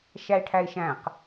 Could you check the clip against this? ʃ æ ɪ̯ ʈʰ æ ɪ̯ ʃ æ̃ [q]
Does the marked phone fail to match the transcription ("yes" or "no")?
no